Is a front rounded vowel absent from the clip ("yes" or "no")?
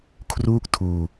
yes